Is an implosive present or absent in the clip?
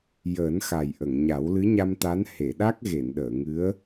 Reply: present